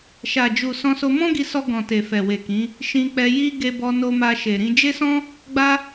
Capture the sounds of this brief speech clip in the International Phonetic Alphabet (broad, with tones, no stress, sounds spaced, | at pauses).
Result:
ʃ a˨ d͡ʒ u˨ s ɔ̃˧ s o˧ m ɔ̃˦ ɡ i˧ s ɔ˧ ɡ ɔ̃˨ t e˨ f ɛ˨ w e˨ k ĩ˨˦ | ʃ ĩ˧ k͡p ɛ˧ j i˧ ɡ e˧ b ɔ˧ n o˧ m a˧ ʃ e˨ ɾ ĩ˧ d͡ʒ e˦ s ɔ̃˦ | ɡ͡b a˧